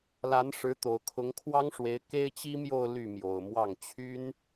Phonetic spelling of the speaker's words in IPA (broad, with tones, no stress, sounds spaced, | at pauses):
l a˧˥ n ʂ ɻ̩˧˥ t̪ o˨˩ ʊ̯ kʰ ʊ˧˥ ŋ kʰ w ɑ˥ ŋ ʂ w e˧˥ ɪ̯ k e˥ ɪ̯ t͡ɕ i˥ m j o˥˧ ʊ̯ l y˥˩ m j o˨˩ ʊ̯ m w ɑ˥˩ ŋ t͡ɕʰ y˥ n